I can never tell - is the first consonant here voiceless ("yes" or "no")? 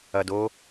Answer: no